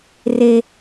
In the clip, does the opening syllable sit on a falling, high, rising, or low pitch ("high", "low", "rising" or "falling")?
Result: low